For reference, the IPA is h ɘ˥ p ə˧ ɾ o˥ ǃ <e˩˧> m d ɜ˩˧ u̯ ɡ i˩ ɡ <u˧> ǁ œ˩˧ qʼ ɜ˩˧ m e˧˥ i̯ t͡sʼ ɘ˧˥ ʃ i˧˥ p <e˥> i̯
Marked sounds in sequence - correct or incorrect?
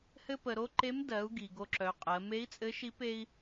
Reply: incorrect, incorrect, correct

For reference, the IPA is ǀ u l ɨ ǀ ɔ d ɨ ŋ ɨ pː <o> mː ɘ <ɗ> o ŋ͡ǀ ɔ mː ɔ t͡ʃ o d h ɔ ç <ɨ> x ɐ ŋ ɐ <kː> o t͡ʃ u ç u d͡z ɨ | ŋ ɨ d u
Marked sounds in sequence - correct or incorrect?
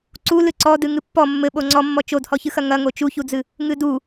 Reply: incorrect, incorrect, correct, incorrect

